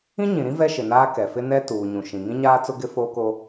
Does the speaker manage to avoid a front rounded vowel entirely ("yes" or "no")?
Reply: yes